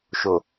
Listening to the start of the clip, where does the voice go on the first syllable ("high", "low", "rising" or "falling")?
low